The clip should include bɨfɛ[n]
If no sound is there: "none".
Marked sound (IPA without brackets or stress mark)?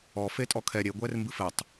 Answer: tˤ